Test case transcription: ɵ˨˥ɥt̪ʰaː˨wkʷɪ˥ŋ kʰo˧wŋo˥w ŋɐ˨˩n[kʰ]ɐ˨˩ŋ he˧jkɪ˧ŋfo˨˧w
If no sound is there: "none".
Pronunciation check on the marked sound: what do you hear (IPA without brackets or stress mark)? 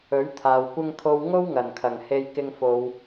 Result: kʰ